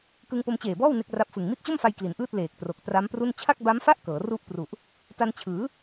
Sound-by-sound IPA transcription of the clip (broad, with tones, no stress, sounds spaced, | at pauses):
k ɯ˧ ŋ p o˧ m t͡ɕ eː˨˩ b ɔː˥˩ w n e˥˩ k̚ r a˦˥ p̚ f ɯ˨˩ ŋ m i˦˥ t̚ t͡ɕ o˥˩ m f a˧ j k l i˩˦ n ʔ ɯː˥˩ t̚ l eː˨˩ k̚ t r o˨˩ k̚ t r a˦˥ m p r u˥˩ n t͡ɕʰ a˥˩ k̚ b a˦˥ m f a˥˩ ʔ k ɤː˩˦ r u˥˩ ʔ p r u˨˩ ʔ | t a˧ n t͡ɕʰ ɯː˩˦